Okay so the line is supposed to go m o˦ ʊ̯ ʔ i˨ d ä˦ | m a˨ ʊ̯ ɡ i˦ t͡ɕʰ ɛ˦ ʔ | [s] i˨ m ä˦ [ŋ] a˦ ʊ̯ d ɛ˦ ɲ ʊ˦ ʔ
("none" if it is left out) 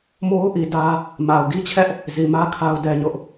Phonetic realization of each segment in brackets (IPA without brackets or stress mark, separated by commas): z, kʰ